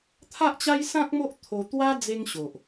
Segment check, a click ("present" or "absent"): absent